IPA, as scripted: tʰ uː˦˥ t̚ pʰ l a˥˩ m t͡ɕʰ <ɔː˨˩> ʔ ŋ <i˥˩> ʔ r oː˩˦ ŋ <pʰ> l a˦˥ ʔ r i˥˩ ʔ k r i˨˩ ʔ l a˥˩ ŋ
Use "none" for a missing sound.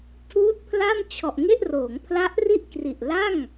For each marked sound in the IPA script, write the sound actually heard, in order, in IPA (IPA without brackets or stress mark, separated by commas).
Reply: ɔ˨˩, e˥˩, pʰ